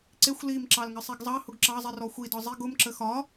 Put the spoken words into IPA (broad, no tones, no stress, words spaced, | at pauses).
ǀɪxʷ lim ǁɑlŋəsˤiɡzˤɑ hʊɡǁɑzˤi rɔxʷidɒ zˤiɡ ʊm ǁəxɒ